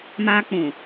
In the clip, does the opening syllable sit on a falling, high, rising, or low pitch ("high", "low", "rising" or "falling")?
high